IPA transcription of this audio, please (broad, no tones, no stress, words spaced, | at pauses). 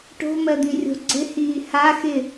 ʈo̤mɜd̪ĩrʲo̤ ɡ͡ǀɪhiː ha xɪ